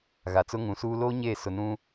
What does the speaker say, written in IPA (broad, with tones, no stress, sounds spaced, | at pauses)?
ɣ a˨ t͡s ʊ˦ ŋ ũ˨˦ s uː˦ l oː˦ ɲ eː˦˨ s ʊ˨ n ũ˦